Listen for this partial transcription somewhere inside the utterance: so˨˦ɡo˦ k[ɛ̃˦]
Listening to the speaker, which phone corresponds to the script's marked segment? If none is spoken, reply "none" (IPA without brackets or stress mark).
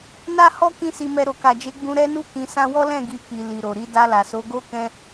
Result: ɛ̃˦